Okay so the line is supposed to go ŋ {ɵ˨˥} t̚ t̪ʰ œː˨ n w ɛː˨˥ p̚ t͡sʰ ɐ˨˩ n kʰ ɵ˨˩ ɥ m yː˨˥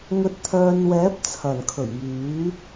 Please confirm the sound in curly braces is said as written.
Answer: no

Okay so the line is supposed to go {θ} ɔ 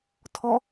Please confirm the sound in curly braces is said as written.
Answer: no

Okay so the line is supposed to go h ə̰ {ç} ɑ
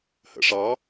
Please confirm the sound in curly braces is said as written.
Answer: no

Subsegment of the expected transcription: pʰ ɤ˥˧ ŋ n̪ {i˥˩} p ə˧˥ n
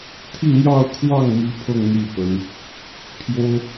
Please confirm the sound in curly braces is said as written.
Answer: yes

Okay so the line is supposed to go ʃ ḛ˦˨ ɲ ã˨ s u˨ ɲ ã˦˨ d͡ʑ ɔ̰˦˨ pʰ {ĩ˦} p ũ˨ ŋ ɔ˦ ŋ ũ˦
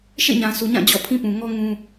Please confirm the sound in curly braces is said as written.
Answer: yes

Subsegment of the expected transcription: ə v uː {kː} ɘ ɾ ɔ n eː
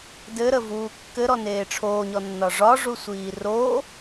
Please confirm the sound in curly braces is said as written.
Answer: yes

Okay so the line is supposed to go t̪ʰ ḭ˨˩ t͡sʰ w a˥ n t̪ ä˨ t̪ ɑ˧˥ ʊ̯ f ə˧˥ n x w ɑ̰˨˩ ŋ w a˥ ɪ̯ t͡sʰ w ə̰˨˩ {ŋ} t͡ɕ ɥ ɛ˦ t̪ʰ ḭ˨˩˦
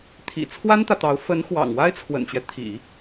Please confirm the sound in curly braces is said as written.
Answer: no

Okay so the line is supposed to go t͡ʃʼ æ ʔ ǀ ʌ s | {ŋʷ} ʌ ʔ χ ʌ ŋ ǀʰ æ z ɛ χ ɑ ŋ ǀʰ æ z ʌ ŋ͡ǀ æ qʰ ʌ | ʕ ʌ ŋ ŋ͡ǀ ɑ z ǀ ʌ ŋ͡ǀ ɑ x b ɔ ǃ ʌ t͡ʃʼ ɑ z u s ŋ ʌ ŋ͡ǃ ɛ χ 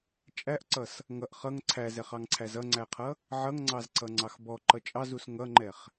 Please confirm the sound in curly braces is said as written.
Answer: no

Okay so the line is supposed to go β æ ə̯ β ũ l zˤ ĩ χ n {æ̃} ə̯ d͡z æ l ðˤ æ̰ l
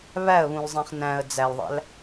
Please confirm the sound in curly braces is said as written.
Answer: yes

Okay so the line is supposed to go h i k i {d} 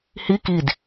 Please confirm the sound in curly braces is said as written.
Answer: yes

